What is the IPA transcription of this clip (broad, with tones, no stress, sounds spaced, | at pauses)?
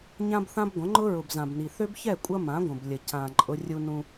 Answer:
ɲ ã˦ b θ ã˦ b ɡʷ ə̃˨˦ ŋ͡ǃ ʊ˦ ɹ ʊ˨ b z ã˨ b n i˨ θ ø˦ b ç ɛ˦˨ kʷʼ ɐ˦ m ã˨˦ ɡʷ ə̃˨ b lʲ ə˨ c ã˨ ǃʼ ʊ˦ rʲ u˦ n ũ˦